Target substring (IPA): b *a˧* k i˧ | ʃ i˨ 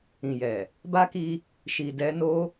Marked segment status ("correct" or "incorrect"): incorrect